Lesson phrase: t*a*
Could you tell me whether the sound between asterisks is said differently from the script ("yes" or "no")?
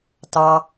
yes